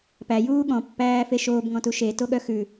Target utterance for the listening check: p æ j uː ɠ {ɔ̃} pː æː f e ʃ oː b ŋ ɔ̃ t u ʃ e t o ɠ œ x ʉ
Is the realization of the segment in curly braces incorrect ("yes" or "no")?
no